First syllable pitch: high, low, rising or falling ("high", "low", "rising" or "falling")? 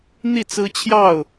falling